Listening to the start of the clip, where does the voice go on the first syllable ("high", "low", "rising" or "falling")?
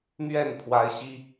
falling